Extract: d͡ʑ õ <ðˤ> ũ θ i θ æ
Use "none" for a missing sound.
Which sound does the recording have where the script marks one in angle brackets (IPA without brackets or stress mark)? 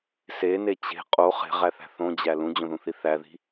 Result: ð